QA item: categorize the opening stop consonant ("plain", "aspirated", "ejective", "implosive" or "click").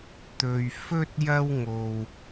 plain